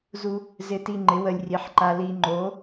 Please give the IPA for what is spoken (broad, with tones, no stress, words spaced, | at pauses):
zu˧ | zɪ˧ti˧ ŋ͡ǃɪ˨˥wə˧lʲrʲe˨˥ħǃa˧ li˧ŋ͡ǃo˨˥